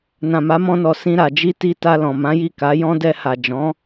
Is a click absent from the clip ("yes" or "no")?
yes